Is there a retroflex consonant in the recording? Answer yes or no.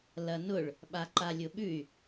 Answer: yes